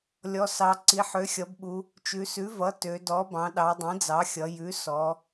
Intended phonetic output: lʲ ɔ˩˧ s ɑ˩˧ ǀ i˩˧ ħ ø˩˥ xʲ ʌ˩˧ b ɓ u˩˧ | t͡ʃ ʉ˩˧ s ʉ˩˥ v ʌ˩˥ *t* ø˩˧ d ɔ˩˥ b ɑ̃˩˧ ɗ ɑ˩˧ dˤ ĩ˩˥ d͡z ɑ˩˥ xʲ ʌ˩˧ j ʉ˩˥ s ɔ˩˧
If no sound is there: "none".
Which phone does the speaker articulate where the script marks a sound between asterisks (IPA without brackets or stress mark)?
t